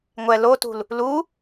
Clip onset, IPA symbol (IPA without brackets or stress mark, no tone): ŋʷ